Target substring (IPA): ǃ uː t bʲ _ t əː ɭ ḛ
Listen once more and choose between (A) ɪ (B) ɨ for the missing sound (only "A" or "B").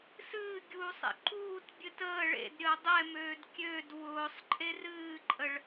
B